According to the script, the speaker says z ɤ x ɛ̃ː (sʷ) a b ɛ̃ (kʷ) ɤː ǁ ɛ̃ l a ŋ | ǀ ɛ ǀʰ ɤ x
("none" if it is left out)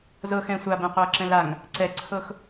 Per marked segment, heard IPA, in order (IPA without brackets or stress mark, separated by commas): sʷ, qʷ